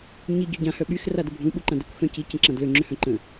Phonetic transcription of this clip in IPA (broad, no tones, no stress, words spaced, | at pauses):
ɲi ɟœɟã hœɓyx radəbʱũ ɓuǃãdəkʷ xœ̃ci cə̃ǁãdlø ŋ͡ǁøhœ̃ǃə̃